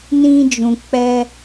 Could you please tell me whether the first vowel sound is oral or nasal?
nasal